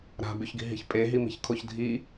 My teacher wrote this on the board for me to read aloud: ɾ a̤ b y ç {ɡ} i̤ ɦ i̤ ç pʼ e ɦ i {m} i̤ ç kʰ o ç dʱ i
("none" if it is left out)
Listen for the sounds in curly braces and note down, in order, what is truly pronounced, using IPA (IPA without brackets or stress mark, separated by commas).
ɡ, m